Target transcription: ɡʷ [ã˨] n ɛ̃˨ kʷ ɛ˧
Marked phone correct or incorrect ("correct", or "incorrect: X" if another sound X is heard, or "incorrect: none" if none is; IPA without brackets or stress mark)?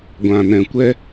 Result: correct